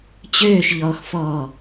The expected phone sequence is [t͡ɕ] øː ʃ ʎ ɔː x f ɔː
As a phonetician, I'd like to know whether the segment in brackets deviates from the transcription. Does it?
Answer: no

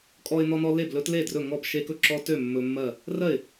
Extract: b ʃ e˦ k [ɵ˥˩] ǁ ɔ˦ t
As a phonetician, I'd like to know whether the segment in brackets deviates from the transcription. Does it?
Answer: no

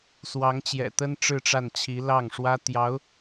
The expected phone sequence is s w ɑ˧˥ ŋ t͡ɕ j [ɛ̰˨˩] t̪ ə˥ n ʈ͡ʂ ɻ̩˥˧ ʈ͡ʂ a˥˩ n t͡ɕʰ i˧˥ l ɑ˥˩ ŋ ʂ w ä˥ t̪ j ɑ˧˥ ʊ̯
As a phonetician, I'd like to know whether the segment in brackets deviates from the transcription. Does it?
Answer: no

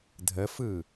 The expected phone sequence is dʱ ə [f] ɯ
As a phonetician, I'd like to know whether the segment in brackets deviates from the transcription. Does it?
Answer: no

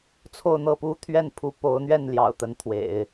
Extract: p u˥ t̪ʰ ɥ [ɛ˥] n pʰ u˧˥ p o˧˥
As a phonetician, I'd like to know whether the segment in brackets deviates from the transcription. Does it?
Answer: yes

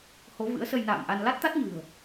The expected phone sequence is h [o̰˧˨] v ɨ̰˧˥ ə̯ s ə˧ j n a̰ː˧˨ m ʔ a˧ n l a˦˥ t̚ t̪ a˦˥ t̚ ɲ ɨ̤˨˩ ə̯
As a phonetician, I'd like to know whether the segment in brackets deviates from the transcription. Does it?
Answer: yes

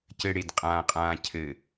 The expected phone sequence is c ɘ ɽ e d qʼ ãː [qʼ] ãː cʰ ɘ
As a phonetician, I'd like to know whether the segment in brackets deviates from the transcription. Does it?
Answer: no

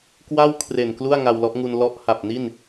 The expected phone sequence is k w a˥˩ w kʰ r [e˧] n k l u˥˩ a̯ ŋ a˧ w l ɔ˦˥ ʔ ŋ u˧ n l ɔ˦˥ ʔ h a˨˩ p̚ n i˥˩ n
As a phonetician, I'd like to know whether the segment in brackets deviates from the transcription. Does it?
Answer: yes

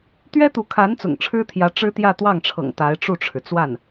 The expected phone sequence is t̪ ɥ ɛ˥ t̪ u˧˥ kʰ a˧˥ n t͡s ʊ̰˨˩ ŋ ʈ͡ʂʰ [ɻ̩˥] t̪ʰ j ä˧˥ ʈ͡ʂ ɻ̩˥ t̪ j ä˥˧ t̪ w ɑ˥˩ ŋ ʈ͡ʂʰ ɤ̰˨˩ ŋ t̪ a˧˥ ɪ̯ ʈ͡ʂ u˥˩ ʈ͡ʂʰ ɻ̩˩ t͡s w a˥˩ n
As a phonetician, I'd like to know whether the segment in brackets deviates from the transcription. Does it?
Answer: no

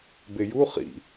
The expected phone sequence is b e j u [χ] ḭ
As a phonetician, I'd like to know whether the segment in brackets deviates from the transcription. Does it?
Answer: no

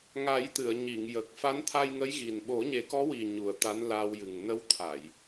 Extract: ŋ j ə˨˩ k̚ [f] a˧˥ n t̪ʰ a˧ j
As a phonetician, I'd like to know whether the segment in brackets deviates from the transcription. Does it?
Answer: no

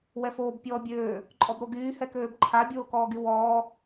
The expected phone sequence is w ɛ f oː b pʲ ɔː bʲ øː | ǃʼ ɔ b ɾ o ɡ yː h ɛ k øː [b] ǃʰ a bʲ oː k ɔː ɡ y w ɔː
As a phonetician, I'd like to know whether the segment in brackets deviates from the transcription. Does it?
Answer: no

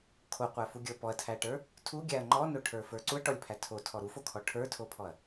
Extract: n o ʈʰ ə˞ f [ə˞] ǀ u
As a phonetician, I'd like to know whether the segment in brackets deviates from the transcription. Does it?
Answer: no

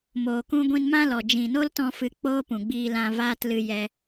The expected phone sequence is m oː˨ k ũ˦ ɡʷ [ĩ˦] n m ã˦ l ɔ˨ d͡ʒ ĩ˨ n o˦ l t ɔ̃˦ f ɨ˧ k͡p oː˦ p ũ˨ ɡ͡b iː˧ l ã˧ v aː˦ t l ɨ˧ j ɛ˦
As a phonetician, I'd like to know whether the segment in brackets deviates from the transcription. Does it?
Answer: yes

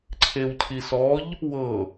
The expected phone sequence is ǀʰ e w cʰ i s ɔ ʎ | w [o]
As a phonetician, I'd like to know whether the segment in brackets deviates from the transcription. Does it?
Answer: yes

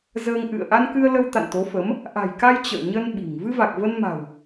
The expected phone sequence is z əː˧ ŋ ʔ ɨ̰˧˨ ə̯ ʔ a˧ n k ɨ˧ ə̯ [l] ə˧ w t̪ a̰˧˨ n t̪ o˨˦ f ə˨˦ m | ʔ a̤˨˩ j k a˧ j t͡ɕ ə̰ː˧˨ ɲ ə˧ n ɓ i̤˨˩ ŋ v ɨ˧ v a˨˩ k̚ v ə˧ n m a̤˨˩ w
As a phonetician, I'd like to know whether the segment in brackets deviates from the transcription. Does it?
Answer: no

